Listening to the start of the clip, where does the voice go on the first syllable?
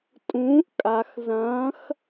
rising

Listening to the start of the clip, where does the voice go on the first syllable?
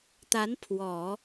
rising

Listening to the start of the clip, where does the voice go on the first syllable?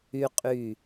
high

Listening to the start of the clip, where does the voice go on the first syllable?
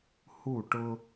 falling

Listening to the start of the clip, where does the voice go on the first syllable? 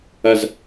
low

